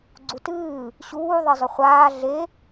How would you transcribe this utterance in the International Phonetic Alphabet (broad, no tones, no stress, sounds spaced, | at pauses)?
ɡ͡ǀ u t ɨː | ɕ uː ðˤ ɨ zˤ ʏ χʷ aː ɮ e